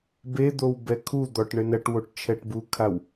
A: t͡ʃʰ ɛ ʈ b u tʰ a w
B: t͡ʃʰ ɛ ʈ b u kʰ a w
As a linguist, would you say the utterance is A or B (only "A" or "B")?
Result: B